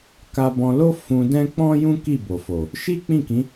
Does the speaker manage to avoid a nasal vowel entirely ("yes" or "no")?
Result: no